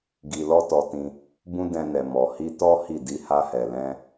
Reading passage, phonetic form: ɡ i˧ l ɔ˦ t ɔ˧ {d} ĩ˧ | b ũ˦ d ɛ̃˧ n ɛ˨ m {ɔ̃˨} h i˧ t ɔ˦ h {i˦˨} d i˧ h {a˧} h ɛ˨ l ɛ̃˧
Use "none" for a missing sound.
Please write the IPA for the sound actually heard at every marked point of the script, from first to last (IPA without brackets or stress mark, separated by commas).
t, ɔ˨, i˦˨, a˧